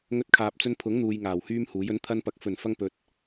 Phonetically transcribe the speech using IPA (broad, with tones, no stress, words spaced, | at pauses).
ŋɵ˧t̚kʰaː˨p̚t͡sɵ˧npʰʊ˨˥ŋ n̪uː˧jŋaː˨˩whyː˥mhuː˨˥j ɵ˨˥nt̪ʰɐ˧npɐ˨˥k̚ fɵ˨˩nfɐ˧ŋ pɵ˨t̚